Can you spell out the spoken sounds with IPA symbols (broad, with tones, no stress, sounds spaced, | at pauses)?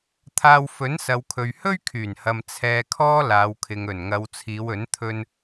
t̪ʰ aː˧ w f ɵ˨˥ n s ɐ˨˧ w kʰ ɵ˨ ɥ h ɵ˥ ɥ kʰ yː˨˩ n h ɐ˨ m t͡sʰ ɛː˨ kʰ ɔː˧ l aː˨˧ w kʰ ɪ˨ ŋ ɵ˨˩ n ŋ ɐ˨˧ w t͡sʰ iː˨˧ w ɵ˨˥ n t̪ʰ ɵ˧ n